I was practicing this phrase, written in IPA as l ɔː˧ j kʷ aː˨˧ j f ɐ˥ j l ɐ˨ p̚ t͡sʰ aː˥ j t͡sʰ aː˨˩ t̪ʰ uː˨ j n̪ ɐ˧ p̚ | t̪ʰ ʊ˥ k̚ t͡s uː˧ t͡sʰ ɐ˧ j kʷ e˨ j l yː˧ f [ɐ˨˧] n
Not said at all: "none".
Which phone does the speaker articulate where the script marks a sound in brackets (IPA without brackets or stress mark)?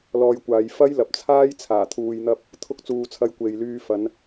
ɐ˨˧